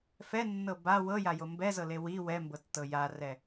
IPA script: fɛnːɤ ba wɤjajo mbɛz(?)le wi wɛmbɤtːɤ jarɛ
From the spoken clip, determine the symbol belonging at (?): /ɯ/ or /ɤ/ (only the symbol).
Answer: ɤ